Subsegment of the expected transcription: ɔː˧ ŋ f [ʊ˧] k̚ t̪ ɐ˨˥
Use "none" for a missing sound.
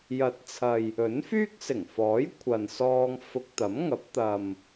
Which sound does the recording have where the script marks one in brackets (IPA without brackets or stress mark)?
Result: ʊ˧